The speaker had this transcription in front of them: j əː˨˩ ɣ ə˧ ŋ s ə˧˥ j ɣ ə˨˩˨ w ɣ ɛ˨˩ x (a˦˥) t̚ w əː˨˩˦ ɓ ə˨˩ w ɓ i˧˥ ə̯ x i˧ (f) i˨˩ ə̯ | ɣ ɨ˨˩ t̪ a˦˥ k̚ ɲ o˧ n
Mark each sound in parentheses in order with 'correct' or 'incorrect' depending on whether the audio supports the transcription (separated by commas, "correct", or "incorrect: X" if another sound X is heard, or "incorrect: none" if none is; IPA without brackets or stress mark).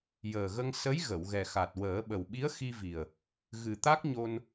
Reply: incorrect: a˨˩, incorrect: v